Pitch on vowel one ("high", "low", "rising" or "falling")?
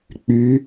rising